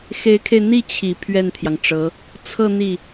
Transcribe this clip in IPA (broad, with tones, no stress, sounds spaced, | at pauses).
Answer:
x e˧˥ ɪ̯ kʰ e˧ ɪ̯ n̪ i˥˩ t͡ɕʰ i˨˩ pʰ ɥ ɛ˥˩ n t̪ʰ j ɑ˩ ŋ ʈ͡ʂ ɤ˧˥ | t͡sʰ ɤ˥˧ n̪ i˥˩